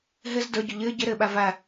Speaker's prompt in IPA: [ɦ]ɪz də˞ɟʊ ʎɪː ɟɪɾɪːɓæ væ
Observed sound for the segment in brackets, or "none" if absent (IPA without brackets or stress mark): ɦ